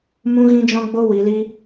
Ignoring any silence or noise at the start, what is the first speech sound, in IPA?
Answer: m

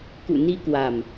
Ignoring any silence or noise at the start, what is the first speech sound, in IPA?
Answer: k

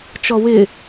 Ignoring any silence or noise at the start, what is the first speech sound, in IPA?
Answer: t͡ʃ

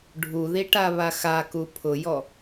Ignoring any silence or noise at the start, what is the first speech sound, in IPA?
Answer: ɖʱ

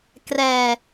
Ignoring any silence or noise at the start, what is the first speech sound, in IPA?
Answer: k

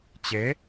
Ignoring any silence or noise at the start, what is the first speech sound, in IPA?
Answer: t͡ɕ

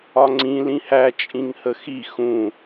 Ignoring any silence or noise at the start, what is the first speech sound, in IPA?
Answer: ɒ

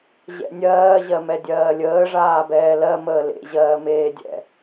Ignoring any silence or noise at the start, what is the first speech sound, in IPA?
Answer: ʑ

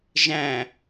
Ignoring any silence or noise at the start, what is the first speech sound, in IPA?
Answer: ʒ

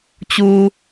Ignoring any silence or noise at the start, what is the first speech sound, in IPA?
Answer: t͡ɕ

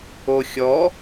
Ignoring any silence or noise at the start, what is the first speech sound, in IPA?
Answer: o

